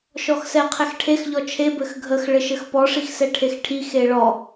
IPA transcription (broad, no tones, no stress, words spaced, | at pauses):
ʃɔxsɛqʰɛxʈʰex ʎɔt͡ʃʰe bɘxɡʱəx ɭɘʃɘxpɔ ʂixsɛʈʰexʈʰi xeɭɔ